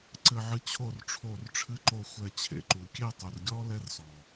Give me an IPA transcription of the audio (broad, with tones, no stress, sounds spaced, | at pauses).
ǀ ɘ˧ ʕ ɨ˧ t͡ɕʰ o˦˨ r ʈ͡ʂʰ o˦˨ r ʈ͡ʂʰ ɨ˦ ǃ o˦˨ xʷ ɛ˧ t͡ɕʰ ḛ˨ ǃ u˨ kʲ e˦˨ tˤ u˨ r ɡʲ ɔ˦ l ɛ˦ r s ɔ˨